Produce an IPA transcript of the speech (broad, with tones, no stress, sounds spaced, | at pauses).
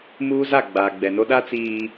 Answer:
m uː˦ z a˦˨ ɡ͡b aː˨ ɡ͡b ɛ˨ n o˦ ɗ a˦ t͡s iː˦